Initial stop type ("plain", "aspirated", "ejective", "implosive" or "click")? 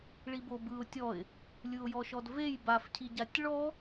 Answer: plain